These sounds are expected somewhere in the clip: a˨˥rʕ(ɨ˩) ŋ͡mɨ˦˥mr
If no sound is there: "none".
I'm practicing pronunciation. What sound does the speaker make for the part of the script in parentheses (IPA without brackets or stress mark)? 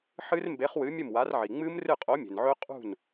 i˩